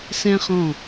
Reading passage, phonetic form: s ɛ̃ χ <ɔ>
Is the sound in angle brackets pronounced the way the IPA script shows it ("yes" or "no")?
no